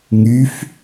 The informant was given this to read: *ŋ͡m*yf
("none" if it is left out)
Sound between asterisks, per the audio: ŋ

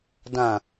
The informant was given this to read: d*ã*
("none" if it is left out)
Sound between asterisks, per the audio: ã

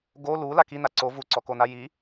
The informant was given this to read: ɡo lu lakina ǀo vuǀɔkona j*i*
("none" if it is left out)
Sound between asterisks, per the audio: i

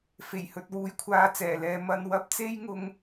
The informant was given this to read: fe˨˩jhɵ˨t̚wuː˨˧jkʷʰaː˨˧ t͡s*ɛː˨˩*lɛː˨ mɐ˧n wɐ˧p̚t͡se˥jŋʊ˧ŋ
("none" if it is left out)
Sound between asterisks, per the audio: ɛː˨˩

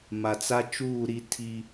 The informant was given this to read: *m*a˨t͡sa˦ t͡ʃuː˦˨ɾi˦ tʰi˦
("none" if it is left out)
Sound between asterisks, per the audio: m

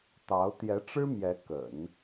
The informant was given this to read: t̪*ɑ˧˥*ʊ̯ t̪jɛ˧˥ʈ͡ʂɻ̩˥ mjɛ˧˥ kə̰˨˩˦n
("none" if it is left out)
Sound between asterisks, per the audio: ɑ˧˥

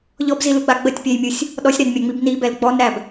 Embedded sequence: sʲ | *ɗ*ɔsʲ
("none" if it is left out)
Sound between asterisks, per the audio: ɗ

